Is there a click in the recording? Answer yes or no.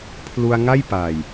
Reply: no